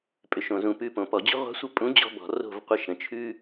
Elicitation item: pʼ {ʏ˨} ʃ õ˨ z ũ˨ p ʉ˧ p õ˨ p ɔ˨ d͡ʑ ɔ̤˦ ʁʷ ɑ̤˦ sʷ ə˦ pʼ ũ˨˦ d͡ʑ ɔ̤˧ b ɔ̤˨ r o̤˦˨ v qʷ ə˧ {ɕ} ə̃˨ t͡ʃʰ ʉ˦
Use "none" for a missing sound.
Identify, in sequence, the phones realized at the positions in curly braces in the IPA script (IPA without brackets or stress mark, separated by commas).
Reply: ʏ˨, ʃ